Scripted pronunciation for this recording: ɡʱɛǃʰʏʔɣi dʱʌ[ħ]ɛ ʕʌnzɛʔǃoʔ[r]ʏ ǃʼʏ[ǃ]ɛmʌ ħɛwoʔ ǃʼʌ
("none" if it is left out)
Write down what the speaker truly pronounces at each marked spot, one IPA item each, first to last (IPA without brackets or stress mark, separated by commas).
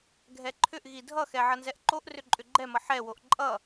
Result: x, r, ɡ͡ǃ